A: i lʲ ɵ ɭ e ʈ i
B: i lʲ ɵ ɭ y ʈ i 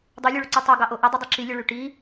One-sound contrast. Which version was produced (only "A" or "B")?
B